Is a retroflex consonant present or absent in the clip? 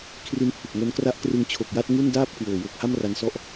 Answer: absent